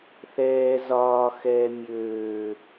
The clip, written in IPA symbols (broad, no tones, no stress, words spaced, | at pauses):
θɛː zɒːxɛː mʲøː